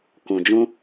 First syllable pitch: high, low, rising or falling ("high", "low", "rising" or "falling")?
low